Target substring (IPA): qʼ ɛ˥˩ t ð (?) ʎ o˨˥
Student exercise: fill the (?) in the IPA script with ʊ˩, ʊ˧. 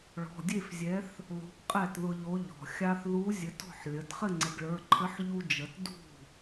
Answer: ʊ˧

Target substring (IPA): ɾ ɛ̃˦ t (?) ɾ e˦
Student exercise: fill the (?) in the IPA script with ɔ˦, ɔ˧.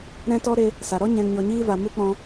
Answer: ɔ˦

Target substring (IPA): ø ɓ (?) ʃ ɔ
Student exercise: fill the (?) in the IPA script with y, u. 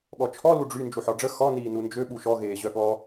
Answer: u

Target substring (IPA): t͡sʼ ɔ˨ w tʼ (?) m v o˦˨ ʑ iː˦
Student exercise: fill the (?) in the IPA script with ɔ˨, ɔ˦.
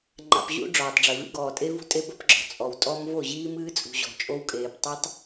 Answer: ɔ˦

